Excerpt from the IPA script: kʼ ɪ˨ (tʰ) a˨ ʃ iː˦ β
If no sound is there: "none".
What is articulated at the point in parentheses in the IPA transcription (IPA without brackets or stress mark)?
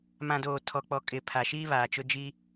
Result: pʰ